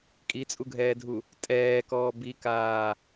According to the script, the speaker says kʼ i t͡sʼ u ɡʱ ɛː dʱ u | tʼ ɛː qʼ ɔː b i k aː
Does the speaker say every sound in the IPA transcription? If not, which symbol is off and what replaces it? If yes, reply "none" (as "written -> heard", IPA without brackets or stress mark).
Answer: qʼ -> k